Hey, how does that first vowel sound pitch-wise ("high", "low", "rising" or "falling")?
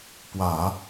low